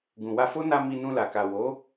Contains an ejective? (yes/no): no